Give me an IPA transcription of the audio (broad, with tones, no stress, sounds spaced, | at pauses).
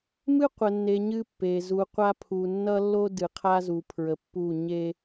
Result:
m ɨ˦ qʷ ə˨ nː e˨ ɲ ɨ˦ pː e˨ z u˨ qʷ a˦ pʰ u˨ nː ʌ˦ lː o˦ d ɨ˨ qʰ a˦ z u˨ pʰ ɹ ə˨ pː u˦˨ ɲ e˦